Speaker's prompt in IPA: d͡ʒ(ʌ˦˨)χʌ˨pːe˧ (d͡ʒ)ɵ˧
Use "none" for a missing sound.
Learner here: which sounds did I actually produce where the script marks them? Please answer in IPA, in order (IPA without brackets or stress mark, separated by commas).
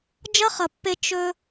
ʌ˦, t͡ʃ